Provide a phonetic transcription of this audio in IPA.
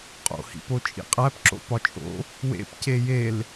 qʼ o̰ h ḭ p o t͡ʃʼ ḭ qʼ æ p ǁ o̰ p ɒ t͡ʃʼ o̰ | w ḛ p c e j e l

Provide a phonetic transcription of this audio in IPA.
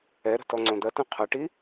ɛ ɾ ə̤ t ɔ ŋ͡ǀ õ d̪ ɐ t ɐ̃ qʰ ɐ ʈ i

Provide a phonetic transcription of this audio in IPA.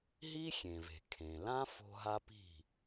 ɦ i˥ xʲ ẽ˩ v e̤˩ kʰ ẽ˩ l ã˥ f o̤˥ ɦ a˥ p i̤˥˩

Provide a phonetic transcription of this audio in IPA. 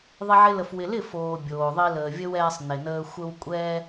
ðˤ ɪ˦ ʕ ɪ˦ l ə˧ f w ɪ˧ l ɪ˦˨ f oː˨ bʲ oː˨ ðˤ i˧ l əː˨ vʲ ə˦ w ɛː˧ sˤ n ɪ˨ n əː˧ xʷ ə˧ w kʷʼ ɛː˧

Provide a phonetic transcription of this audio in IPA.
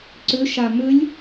ǀ ʏ ʃ a m ʏ lʲ

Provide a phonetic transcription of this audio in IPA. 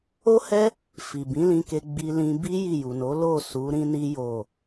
o˦ h ɛ˦ | f i˨ b ĩ˨˦ l ĩ˧ k e˧ ɡ͡b i˧ l ĩ˧ b i˦ j i˦˨ j u˨ n o˨˦ l o˦˨ s u˨˦ ɾ ĩ˦ n i˦ j o˦˨

